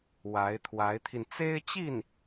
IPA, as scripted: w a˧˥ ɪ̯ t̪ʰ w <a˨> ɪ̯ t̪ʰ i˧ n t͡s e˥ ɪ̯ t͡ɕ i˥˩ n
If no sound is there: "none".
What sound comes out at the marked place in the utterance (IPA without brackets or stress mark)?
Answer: a˧˥